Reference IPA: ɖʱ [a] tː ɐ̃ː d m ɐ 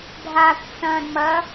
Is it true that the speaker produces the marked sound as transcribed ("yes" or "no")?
yes